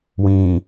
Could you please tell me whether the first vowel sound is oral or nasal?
nasal